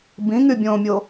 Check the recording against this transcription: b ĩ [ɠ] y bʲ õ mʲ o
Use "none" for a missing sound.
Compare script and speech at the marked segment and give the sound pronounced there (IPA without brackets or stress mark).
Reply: ŋ